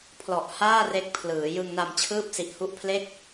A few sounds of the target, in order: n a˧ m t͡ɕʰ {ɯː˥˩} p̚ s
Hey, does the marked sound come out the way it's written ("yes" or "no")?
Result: yes